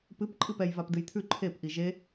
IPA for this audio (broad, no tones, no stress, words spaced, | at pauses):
pɨp ǃʼɨpɛj vapdɨjt̪ʰʉ ǃʰep ʔiʒe